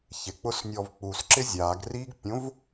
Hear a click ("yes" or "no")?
yes